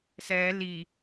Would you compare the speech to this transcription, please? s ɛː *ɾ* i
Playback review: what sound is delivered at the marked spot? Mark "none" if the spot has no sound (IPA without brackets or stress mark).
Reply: l